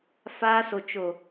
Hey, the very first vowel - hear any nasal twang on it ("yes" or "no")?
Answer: no